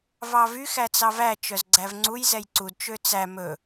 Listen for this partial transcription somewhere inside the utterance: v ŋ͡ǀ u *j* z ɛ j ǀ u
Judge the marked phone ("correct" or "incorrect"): correct